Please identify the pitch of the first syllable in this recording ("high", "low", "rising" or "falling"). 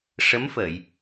rising